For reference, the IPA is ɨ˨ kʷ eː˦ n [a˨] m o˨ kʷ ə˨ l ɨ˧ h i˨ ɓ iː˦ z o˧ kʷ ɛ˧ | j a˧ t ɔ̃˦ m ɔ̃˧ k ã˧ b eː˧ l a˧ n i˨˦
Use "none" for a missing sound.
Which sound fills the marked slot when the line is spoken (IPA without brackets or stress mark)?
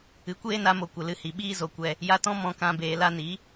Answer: a˧